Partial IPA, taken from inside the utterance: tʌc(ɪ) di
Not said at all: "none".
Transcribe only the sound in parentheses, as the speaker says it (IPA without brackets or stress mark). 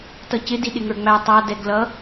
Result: ɪ